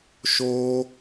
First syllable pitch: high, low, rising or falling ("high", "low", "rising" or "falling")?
high